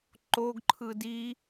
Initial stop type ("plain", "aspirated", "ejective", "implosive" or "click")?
click